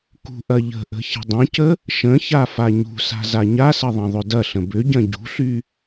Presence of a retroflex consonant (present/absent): absent